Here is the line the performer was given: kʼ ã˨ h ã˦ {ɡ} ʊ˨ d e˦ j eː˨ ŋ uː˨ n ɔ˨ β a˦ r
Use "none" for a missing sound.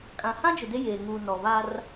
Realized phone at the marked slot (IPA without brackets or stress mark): d͡ʒ